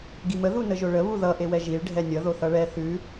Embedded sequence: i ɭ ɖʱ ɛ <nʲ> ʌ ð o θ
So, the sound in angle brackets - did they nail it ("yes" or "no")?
yes